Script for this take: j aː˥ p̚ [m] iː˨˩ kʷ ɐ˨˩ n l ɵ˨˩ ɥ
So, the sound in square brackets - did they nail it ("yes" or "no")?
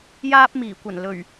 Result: yes